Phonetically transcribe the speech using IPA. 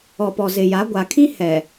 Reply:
ɔ˨ p ɔ˨ z ɪ˨ j a˨˦ ɡʷ a˨ kʰ ĩ˦ h ɛ˨

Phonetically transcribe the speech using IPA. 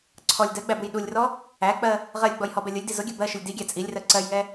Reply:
ǀʰ ɔ lʲ d ɜ ɡ͡b æ b u j ɗ u lʲ r ɔ | æ k͡p ɜ | ʁ ɜ lʲ ɡ͡b ɔ j h ɔ b ɛ lʲ ʊ lʲ d i z ʊ ɡʲ ɜ b ɜ ʃ ʊ lʲ d i ɡʲ æ t͡sʼ i lʲ r ɜ ǀ ɜ j ŋ ɛ

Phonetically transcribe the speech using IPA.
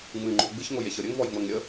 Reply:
ŋ͡m ɨ ŋ͡ǃ o̤ ɡ͡b ɨ ç ŋ o j e ç ɤ ɾʲ ə ŋ v ɔ j ŋ͡m ɤ ŋ ɾʲ ə

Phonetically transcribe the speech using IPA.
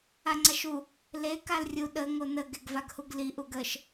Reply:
a ŋ͡ǀ a ʃ u | l e k a l rʲ u ɗ ə ŋ o n ə ɡ e ɡ v a ɡ h u ɡ l i ʔ u ɡ ə ʃ

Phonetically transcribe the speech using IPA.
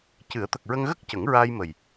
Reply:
c ɨ˨˩˦ ə̯ t̪ ə˨˩ k̚ ɹ ə˧ ŋ ɣ ə˦˥ k̚ c ə˨˩˦ ŋ ɹ aː˧ j m ə˨˩ j

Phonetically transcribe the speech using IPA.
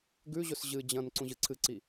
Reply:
ɡ ʉ ʑ ɵ s ʑ ɨ d͡ʑ ɐ̃ n ǀ ũ ʑ ɨ ǀʰ ɨ ǀ i

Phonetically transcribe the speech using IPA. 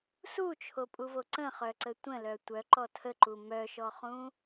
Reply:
s u t͡ʃʰ o pʼ u v o ǀ ə̃ χ œ ǀ ə tʷ ə̃ l œ tʷ œ ǃ ɔ tʰ ə ǃ u m œ ʃ ɔ χ ũ

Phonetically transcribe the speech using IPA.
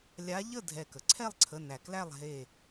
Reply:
lʲ a˨˦ ʎ ə˥˩ dʱ ɛ˧˩ k ə˩ ǀʰ ɛ˥˩ lˠ ǀʰ ə˩˧˩ n æ˩ k l æ˥˩ lˠ ɦ e˧˩

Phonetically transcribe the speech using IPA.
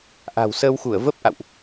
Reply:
ʔ a̤˨˩ w s əː˧ w x u˧˩ ə̯ v ə˦˥ p̚ ʔ a̰˧˨ w ʔ

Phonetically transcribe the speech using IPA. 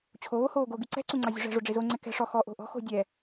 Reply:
t͡ɕʰ oː h oː ɡ o ɡ y ǀ ɛ̤ ǀ u ŋ͡ǀ ɑ zʲ o̤ ʐ ɛ̤ ʐ o ɖ͡ʐ e z o ŋ͡ǀ ɛ k ɛ̤ ʂ ɔ x ɔ ʔ o̤ ʔ ɔ̤ x o̤ dʲ ɛ

